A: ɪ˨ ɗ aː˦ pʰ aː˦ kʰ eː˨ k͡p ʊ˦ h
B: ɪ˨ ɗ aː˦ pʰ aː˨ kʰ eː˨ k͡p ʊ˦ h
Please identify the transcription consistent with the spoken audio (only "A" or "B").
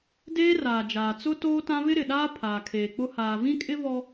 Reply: B